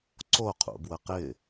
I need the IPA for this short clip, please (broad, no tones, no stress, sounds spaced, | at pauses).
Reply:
ǀ o qʰ ṵ b w ə q ɪ